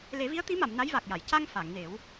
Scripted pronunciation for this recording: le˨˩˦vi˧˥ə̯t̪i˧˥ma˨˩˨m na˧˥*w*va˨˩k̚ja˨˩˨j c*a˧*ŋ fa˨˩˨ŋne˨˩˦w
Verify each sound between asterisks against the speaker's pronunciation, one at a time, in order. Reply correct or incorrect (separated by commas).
incorrect, correct